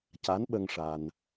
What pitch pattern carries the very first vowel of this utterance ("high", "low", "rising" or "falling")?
rising